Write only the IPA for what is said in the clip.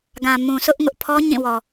ɡ ã˨ m ũ˨ s ʊ˦ ʔ ŋ ʊ˦ ʔ pʰ ɔ˦ ɲ ĩ˦˨ w ɔ˨

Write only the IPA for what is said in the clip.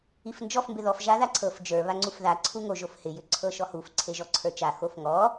i f n d͡ʒ ɔ f m b ɪ ð ɔ f ʒ a ð a ǀʰ ɤ f d͡ʒ ə˞ β a ŋ͡ǀ u f ð a ǀʰ u ŋ o ʒ o f h ɪ j ʏ ǀʰ ɤ ʃ ɔ h u f ǀʰ e ʒ ɔ ǀʰ ə˞ t͡ʃ a x o f ŋ ɔ

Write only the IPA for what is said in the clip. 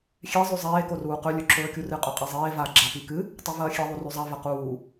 xʲ e zˤ ʉ zˤ eː k o r uː q ɵ lʲ ɵ ǁʰ ɵː kʲ u r ɨ qʼ ɵ qʼ i zˤ eː v a ɡ͡ǁ a p i k ɨ | tˤ e v ɐː xʲ e ðˤ u r ʉ zˤ a v ɐ q uː

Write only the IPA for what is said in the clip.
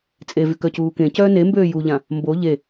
t͡sʼ e v y k œ c uː k ẽ c œː n e m b øː j u ʎ ã | m b o ʎ e

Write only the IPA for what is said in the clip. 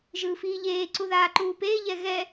ʒ ɯː f iː ʎ eː ǀ u ð aː ǃ uː p eː ʎ ɛ ɣ ɛ

